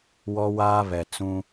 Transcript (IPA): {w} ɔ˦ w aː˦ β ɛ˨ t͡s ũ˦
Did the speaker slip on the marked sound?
no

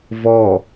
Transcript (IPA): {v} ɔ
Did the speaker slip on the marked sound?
no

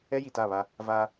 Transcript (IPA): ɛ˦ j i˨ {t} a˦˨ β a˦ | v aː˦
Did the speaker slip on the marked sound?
no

